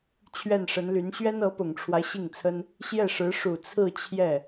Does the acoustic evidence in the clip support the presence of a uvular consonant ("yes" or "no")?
no